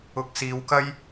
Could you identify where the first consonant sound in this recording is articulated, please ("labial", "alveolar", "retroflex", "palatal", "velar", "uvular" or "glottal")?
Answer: velar